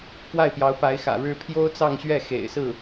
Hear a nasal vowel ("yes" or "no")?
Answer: no